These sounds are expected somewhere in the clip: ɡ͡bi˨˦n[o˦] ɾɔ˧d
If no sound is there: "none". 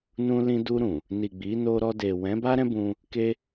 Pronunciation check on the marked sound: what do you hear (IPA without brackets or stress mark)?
o˧